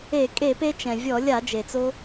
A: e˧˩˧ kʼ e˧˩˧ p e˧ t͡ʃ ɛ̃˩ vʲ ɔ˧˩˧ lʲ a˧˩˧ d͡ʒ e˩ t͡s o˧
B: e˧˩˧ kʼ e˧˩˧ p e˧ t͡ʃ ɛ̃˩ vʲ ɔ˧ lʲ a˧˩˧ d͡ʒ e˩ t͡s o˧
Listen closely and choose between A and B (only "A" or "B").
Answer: A